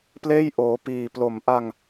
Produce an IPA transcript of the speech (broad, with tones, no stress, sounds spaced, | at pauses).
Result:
p l eː˥˩ j ʔ oː˩˦ p iː˨˩ p l o˨˩ m ʔ a˧ ŋ